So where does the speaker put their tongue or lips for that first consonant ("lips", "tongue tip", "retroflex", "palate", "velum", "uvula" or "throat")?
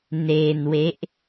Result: tongue tip